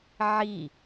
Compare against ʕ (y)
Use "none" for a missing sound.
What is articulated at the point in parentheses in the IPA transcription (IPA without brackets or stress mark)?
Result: i